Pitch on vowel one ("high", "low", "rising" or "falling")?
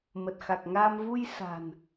low